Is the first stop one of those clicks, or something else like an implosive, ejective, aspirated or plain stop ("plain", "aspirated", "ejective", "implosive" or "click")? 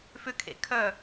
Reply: aspirated